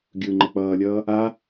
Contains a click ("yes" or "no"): yes